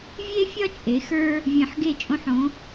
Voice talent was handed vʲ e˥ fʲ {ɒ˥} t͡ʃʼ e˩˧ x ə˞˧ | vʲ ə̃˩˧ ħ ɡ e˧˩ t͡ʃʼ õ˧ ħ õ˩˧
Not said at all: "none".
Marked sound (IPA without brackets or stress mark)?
ɒ˥